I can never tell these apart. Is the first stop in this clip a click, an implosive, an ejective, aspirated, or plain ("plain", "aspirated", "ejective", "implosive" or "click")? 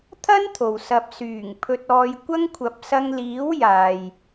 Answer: aspirated